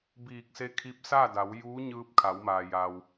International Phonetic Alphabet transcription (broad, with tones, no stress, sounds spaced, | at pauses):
b iː˧˩ k̚ s e˧˥ kʰ i˧˥ p̚ s a˥˨ d a˩˧ w j uː˧˥ ɲ ɯː˧ p̚ kʰ a˩˧ w m aː˩ j a˩ w